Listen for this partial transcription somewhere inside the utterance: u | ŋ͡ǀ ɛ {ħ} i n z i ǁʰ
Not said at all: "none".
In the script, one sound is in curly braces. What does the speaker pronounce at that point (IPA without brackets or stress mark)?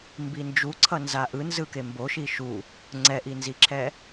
ʔ